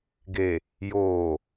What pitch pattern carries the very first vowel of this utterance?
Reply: low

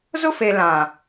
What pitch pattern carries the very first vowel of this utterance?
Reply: high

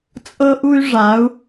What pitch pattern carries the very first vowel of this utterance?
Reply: high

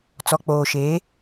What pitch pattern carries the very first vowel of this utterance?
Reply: low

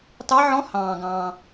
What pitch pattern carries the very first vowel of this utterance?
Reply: rising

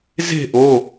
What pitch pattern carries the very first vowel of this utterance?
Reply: falling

